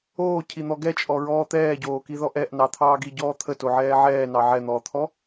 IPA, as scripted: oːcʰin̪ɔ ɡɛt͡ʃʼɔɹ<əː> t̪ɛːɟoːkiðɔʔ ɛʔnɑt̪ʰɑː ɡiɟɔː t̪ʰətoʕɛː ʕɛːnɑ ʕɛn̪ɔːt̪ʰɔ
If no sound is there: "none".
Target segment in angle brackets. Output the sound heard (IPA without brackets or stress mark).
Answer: ɔː